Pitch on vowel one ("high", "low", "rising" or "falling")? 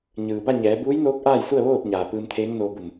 low